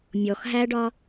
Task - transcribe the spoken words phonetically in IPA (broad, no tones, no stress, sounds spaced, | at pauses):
mʲ ɔ x ɦ æ ɖ ɒ